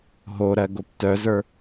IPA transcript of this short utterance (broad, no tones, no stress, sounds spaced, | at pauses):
ɦ o ɾ ɜ ɡ o p t œ z ə˞